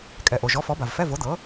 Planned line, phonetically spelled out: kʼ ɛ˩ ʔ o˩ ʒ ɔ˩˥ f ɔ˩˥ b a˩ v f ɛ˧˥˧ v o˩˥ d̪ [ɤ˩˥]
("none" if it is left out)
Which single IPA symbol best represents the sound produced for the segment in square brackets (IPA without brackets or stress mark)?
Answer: ɤ˩˥